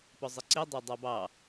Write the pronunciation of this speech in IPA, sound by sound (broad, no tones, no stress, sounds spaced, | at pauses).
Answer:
p ɔ zˤ ɨ ǀ i dˤ ɑ dˤ ɑ b ɑ